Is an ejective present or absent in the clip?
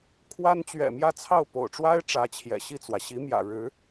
absent